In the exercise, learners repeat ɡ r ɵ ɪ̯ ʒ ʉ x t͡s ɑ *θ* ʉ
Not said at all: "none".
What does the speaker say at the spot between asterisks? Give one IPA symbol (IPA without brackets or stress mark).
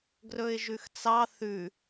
θ